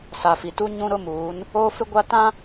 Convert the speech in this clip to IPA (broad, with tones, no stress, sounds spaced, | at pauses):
s a˨ f i˨ t u˦ ɲ ũ˦ ɾ ʊ˦ m uː˨˦ n | oː˦ f ɪ˦ ɡʷ a˦ t ã˦